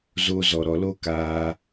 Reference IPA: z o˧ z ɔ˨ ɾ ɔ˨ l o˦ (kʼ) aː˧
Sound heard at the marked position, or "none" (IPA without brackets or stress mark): k